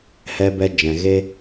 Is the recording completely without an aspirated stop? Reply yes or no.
yes